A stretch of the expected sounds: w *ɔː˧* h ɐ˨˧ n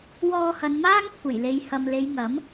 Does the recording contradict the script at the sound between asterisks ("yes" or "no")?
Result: no